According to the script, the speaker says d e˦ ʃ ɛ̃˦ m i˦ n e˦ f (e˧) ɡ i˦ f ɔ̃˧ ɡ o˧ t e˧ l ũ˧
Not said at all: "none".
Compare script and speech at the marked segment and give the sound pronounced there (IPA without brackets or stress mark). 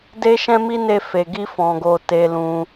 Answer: e˧